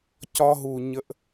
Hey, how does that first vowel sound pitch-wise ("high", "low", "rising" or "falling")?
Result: high